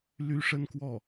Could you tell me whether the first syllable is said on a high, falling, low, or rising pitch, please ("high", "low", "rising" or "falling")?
high